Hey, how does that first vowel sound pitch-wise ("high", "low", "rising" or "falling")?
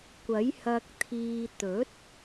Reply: rising